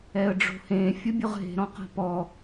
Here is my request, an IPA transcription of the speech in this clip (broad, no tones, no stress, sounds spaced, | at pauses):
ɛ ə̯ ɖ͡ʐ o̤ h ẽ fʲ ʊ bʲ ʊ ʁ ɦ e̤ ɾ ɔ̃ q a̤ p ɔ